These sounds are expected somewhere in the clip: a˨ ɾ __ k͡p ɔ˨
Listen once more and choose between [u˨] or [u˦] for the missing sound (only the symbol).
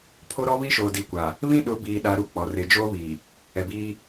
u˦